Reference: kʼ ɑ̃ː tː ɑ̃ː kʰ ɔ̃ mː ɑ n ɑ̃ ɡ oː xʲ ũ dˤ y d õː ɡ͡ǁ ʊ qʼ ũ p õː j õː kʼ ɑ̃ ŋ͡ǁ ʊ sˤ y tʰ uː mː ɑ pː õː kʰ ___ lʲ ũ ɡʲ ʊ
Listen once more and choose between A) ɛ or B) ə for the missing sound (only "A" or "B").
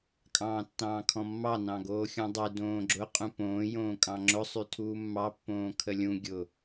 B